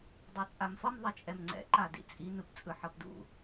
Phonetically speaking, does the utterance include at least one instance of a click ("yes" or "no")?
yes